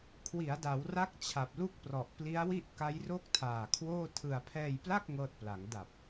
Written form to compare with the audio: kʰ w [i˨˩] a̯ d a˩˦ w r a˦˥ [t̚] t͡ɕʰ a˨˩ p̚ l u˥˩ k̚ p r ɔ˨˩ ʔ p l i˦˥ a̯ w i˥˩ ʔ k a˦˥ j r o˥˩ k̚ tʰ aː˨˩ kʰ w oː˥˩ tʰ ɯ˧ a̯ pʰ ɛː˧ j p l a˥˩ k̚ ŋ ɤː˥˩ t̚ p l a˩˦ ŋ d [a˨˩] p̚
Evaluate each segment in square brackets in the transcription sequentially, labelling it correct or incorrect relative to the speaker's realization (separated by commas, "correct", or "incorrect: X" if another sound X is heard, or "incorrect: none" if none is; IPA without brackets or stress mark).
incorrect: i˩˦, incorrect: k̚, correct